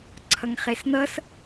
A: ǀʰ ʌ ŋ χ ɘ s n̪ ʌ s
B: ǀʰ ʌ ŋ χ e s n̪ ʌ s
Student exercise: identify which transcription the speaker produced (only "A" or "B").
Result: B